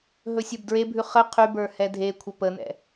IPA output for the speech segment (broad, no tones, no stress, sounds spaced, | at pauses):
ɦ ɵ sʲ ə˞ b d ɹ e bʱ ʉ χ ə qʰ y b ə˞ h ɛ dʱ e kʷʰ ə p ə n ɛ̰